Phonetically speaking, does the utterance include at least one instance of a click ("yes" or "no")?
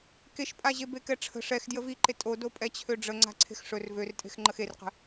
yes